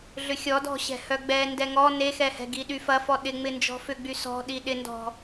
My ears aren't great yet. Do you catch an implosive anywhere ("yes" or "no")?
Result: yes